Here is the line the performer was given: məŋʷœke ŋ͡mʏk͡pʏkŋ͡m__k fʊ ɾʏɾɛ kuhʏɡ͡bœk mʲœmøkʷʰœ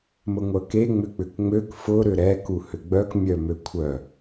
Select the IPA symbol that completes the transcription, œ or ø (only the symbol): ø